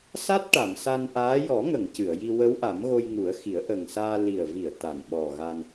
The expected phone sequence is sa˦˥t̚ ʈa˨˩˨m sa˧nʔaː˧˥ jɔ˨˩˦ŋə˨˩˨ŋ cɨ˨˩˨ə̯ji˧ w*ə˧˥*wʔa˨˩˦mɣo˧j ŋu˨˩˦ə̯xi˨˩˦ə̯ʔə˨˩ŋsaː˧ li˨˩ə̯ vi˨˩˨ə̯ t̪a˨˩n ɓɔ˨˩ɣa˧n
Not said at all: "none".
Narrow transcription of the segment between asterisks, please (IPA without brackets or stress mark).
ə˧˥